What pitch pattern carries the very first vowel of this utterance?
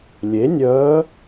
rising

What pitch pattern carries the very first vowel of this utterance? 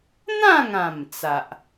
falling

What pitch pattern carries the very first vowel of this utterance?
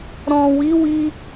low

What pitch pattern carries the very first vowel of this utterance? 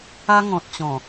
high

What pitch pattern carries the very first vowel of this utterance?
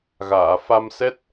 low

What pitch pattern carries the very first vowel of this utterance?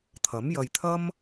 rising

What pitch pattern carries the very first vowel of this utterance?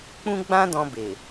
high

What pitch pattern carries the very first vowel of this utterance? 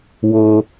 high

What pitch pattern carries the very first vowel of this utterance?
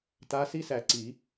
rising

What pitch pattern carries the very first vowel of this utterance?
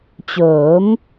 rising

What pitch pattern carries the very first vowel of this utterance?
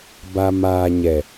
low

